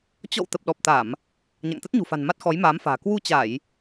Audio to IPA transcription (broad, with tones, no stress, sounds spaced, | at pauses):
t͡ɕ ɔ̰˧˨ w t̪ ə˨˩ p̚ ɗ ɔ˨˩ p̚ t̪ a˧˩˨ m | ɲ a̰˧˨ ŋ t̪ ə˦˥ t̚ ɲ ṳ˨˩ f a̤˨˩ n m a˦˥ t̚ x ɔ˨˦ j m aː˨˦ m f a̤ː˨˩ k w u˧ t͡ɕ a˧˩˨ j